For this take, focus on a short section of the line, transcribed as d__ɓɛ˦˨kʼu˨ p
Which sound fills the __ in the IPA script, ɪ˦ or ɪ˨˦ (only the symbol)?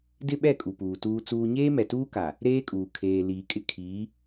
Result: ɪ˦